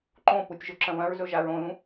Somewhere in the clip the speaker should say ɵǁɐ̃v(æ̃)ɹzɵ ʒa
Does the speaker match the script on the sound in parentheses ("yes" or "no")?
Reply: no